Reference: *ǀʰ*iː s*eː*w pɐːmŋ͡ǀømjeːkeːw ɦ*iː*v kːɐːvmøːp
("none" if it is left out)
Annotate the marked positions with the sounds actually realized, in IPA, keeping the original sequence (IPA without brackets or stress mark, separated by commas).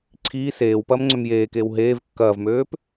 ǀʰ, eː, eː